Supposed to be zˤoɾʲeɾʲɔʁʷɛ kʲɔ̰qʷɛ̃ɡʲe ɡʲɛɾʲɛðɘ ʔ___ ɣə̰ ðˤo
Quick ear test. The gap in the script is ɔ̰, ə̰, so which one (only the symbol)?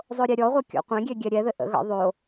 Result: ə̰